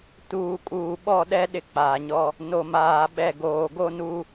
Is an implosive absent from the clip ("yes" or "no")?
no